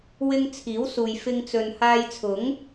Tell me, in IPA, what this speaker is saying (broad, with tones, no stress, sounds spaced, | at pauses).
w ɪ˥ ŋ t͡sʰ iː˨˥ w s uː˨ j f ɪ˧ ŋ t͡s ɵ˨ n h aː˧ j t͡sʰ ʊ˨˥ ŋ